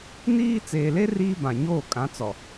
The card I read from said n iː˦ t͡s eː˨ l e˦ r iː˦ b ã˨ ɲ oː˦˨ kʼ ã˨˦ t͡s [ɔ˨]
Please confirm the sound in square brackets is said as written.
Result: yes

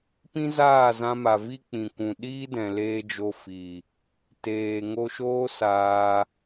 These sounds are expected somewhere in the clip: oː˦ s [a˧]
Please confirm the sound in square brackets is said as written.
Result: no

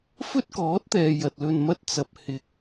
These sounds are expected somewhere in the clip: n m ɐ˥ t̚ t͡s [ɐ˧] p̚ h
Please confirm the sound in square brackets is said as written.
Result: yes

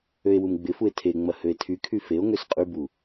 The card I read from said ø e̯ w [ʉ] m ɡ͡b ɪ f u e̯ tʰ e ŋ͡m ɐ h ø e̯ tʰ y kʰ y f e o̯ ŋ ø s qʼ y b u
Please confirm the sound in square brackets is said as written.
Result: no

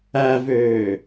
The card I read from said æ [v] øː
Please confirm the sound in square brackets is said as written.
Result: yes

